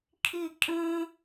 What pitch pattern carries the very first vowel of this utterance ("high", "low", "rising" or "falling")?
falling